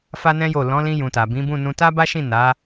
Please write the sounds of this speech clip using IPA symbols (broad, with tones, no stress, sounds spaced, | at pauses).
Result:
f a˦ n ɛ̃˦ j o˦˨ l ɔ̃˨˦ l ĩ˧ j ũ˨ t a˨ b ĩ˨˦ b ũ˦˨ n ũ˧ t a˦ b a˦ ʃ ĩ˦˨ n a˨˦